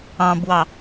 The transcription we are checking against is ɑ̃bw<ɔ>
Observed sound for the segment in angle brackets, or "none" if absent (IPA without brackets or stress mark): ɑ